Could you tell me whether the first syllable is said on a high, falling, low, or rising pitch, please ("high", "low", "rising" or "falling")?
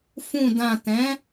low